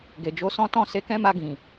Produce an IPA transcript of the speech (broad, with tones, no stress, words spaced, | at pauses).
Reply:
ɡe˨d͡ʒo˧sɔ̃˦ tɔ̃˦˨ se˧kɛ̃˦ma˧ɡĩ˨